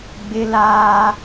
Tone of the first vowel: high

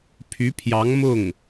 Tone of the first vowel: rising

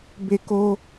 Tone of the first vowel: high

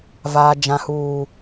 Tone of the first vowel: low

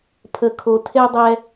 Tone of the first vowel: low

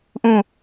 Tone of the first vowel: falling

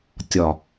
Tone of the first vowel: low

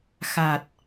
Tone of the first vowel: low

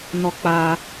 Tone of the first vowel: high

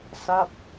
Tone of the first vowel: falling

